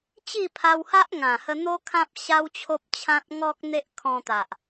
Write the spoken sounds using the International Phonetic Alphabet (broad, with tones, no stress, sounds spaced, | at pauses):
t͡ɕ i˥˧ pʰ a˧ w h a˦ ʔ ŋ ã˨˩ h ə˧ n̪ o˦ kʰ ã˦ p̚ ɕ a˦ w t͡ɕʰ o˦ p̚ t͡ɕʰ ã˦ t̚ ŋ ɔ˦ k̚ n̪ e˦ ʔ kʰ ɔ̃˧ t̪ a˨ ʔ